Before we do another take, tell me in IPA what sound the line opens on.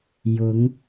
j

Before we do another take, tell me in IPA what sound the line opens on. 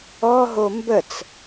ɔ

